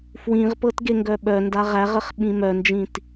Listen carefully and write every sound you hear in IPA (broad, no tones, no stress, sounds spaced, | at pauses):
f w ĩ ʁ p ɤ t ɡ e ŋ ɡ œ ɓ œ n d a ʁ æ ʁ ə χ ɓ ĩ m œ n d͡ʒ ĩ t